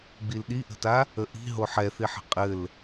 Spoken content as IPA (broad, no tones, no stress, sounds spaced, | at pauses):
ɡ͡b i l ɗ i ʔ ə̤ t a | ə ʔ i̤ ɦ o ħ ɛ θ i ħ ə̤ qʼ ɘ l